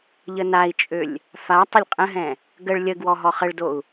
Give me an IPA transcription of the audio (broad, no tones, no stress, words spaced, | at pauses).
ʎənai̯t͡ʃʼølʲ | fa tˤəlʲqʼə̃ɦɛ̃ | ɡəɭ lʲəɡwɔ ɦɔχəɭdou̯